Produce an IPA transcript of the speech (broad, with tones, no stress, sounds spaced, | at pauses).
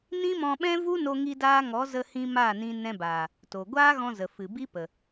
n ĩ˦ m ɔ̃˧ ɓ ɛ̃˦ v u˦ n o˦ ŋ i˦ d aː˦ ŋ ɔ˨˦ z ə˧ h ĩ˧ m a˦˨ n ĩ˧ n ɛ̃˧ b aː˨ | t o˨ ɡʷ aː˦ ɣ ɔ̃˧ z ə˨ f ɨ˨ b i˦ p ə˨